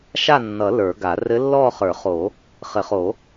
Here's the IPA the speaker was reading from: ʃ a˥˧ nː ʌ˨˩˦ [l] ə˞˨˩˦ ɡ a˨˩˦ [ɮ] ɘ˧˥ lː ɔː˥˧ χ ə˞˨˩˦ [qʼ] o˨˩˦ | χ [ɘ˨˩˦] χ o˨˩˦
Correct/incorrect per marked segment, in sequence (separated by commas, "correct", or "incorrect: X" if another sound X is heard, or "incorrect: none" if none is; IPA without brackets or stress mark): correct, incorrect: r, incorrect: χ, correct